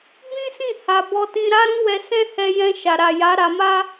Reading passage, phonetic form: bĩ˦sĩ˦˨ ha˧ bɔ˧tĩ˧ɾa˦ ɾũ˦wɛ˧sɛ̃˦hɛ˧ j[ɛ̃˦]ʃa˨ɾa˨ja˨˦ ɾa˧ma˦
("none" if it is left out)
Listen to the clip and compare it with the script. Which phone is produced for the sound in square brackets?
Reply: ɛ̃˧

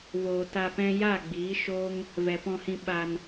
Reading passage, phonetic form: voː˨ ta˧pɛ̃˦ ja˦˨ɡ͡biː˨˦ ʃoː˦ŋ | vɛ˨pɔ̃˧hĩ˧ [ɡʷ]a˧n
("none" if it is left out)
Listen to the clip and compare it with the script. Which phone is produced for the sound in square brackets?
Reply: ɓ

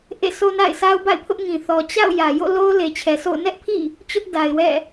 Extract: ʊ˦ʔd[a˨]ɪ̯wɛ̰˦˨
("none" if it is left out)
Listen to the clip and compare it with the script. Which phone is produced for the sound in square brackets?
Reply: a˨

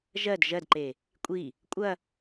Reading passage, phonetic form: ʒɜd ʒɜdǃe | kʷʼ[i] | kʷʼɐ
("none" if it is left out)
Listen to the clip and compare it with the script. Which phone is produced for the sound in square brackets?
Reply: i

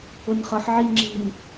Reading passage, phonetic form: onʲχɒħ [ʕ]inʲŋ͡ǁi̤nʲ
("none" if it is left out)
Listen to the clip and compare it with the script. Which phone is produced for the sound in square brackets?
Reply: ʕ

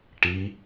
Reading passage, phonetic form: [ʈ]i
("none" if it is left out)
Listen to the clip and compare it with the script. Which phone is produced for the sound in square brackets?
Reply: ʈ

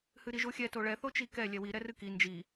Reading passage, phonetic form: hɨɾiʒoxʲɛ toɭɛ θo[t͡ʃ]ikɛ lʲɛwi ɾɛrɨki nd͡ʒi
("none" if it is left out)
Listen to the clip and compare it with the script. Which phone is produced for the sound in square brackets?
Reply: t͡ʃ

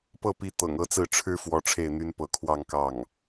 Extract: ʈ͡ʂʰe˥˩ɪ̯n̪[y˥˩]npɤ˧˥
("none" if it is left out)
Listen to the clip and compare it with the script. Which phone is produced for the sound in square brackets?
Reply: y˥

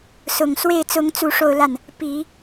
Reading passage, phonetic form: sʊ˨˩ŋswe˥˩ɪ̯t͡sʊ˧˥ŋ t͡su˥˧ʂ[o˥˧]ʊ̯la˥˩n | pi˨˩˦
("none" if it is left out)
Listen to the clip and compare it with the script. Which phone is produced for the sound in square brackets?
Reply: o˥˧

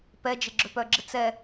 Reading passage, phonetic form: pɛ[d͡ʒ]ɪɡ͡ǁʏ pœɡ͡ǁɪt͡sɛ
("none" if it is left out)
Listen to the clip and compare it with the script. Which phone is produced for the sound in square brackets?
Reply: d͡ʒ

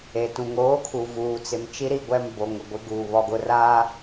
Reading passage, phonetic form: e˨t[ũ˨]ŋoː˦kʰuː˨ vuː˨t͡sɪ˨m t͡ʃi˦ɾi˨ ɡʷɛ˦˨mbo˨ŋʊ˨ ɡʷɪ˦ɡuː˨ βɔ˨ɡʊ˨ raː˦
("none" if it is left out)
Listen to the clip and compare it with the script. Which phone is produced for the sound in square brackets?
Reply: ũ˨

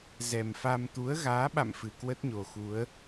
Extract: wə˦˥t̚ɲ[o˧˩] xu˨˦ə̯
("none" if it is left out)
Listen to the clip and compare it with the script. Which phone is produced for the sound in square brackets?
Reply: o˨˩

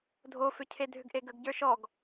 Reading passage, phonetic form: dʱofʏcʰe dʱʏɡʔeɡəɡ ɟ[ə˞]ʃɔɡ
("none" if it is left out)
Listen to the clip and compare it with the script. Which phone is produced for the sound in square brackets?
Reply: ə˞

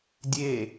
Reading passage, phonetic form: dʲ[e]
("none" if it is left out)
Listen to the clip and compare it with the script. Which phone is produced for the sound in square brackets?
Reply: e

